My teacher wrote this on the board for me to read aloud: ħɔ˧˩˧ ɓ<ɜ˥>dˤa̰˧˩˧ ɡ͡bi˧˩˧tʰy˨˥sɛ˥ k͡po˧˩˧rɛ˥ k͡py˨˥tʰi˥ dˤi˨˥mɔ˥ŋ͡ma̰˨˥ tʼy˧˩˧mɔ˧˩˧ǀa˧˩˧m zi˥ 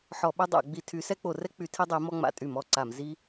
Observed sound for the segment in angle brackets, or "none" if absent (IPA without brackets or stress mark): ɛ˥